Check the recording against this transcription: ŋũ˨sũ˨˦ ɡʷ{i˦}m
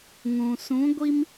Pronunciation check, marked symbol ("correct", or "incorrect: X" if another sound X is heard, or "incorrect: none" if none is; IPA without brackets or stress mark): correct